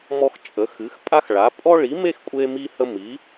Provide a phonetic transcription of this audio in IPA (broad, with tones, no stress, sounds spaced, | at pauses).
m ɔ˥ x t͡ʃʼ ə˨˥ x ɨ˨˥ x pʼ a˥ x ɭ a˨˥ pʼ ɔ˥ ɭ i˨˥ m e˥ x kʷʼ e˥ m i˥ h ə˥ m i˨˥